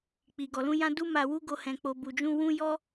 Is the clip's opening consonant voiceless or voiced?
voiceless